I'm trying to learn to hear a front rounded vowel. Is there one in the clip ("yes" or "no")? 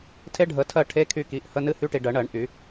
yes